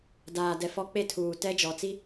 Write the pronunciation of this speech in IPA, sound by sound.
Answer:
d aː˨ d ɛ˨ f ɔ˦ k͡p e˦˨ tʰ uː˨ t ɛ˦ d͡ʒ ɔ˨ t͡s i˦

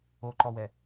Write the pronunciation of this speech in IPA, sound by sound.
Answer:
o ǃ ɔ w ɛ

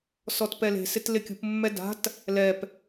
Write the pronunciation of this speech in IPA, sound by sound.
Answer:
s ɔ t p ɛ l e̤ s ɪ t l ɪ kʲ ṳ p mː ɛ d a̤ t | l ɛ p

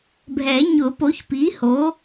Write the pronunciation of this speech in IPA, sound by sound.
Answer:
bʱ ɛ˨˩˦ ɲ ʊ˨˩˦ p o˩˥ ç p i˩˥ h o˩˥

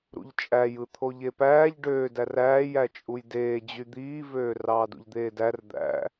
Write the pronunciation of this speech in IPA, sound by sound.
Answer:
ɾ ṵ ʎ t͡ʃʼ æ j ɯ t̪ʰ o ʎ e p æː ʎ ɖ øː d æ r æː j æ t͡ʃʼ u j d eː d͡ʑ y d̪ iː v øː r ɑː d ṵ ʎ d̪ eː d æ r d̪ æ̰

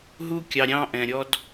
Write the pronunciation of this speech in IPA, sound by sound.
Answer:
ɦ u˧ kʲ ɑ˨ ɾʲ ɑ̃˧ ʔ ɛ̃˨ ɾʲ ɔ˧ d

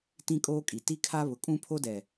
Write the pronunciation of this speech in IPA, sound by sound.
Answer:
t ĩ˦ kʼ oː˦ kʼ i˨ t i˦ kʰ a˦ β ʊ˨ kʼ ũ˦ pʰ o˦ d ɛ˨

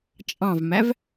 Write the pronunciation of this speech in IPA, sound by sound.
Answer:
t͡ʃʼ ɑ̃ v m æ v

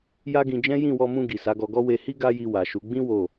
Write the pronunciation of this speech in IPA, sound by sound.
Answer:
j a˦ ɡ ĩ˧ d͡ʒ ɛ̃˦ j ĩ˦˨ w ɔ˧ m ũ˧ ɡ i˨ s a˨˦ ɡ ɔ˧ ɡ ɔ˦ w e˧ h i˦ ɡ a˦ j i˧ w a˨ ʃ u˨˦ ɡ͡b ĩ˦ w o˦˨

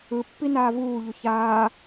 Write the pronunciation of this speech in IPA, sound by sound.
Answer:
ɯ pː i n aː v uː ʎ u ç aː

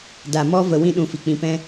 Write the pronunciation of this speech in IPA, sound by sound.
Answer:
d a˨ m ɔ˧ v ə˨ w ĩ˦ ɗ ũ˧ f i˨ k͡p ĩ˧ p ɛ̃˦

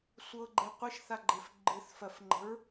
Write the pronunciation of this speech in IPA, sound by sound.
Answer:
sʷ ɤ ɡ͡ǃ e qʷ ɨ ʃ θ a ɡ͡ǃ e f ɡ͡ǃ ɨ θ f ɜ f ŋ͡ǃ ə̤ ɹ

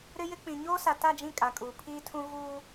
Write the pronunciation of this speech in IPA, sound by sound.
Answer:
ɾ ɪ˦ j ɪ˦ k͡p ĩ˨ ɲ oː˦ s a˨ t a˦˨ d͡ʒ ĩ˦˨ kʼ a˨ kʼ uː˨ pʰ iː˦ tʰ ũ˦ ɣ uː˦

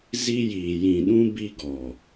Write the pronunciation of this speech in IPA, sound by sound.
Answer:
z i˦ j iː˨ j ĩ˨ ɗ ũ˦ b i˦ ɡ ɔ˨

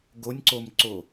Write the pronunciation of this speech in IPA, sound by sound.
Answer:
ɡ o nʲ ǀ o m ǀ o

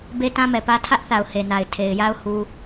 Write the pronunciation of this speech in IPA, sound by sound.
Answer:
b e˦ t ã˦ m ɛ˨ p ä˦ tʰ ä˦ ʔ θ a˨ ʊ̯ h e˨ n a˨ ɪ̯ tʰ e˨ ɪ̯ j a˦ ʊ̯ h u˦

